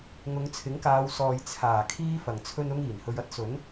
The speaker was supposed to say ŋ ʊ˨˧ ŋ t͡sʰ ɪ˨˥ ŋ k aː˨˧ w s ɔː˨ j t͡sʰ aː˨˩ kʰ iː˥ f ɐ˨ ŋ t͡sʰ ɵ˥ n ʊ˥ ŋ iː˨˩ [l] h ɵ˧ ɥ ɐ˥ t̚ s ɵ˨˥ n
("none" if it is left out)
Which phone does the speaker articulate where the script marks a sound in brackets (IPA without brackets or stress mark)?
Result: n